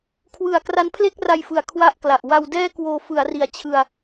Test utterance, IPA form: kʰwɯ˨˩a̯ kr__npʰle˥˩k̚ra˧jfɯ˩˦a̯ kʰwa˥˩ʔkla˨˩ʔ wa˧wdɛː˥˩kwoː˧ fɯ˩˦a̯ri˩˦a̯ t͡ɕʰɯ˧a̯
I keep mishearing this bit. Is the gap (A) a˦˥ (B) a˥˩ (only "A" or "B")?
A